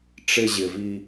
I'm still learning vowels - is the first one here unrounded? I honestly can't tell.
yes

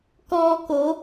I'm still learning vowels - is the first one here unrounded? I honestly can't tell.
no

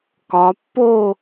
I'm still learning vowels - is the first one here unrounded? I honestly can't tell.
no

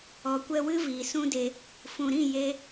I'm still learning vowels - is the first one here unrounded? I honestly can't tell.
no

